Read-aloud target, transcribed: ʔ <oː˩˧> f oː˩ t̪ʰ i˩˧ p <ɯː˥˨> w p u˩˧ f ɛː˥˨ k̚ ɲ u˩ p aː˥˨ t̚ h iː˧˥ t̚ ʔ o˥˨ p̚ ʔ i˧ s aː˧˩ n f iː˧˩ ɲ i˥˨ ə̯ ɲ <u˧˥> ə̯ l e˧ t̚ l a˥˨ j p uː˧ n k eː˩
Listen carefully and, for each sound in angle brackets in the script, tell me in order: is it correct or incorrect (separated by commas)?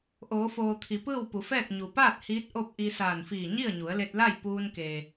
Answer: correct, correct, incorrect